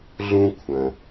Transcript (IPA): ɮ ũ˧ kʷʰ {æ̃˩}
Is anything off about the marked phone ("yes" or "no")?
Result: yes